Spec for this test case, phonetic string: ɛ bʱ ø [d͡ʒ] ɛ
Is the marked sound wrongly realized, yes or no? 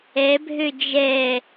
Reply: no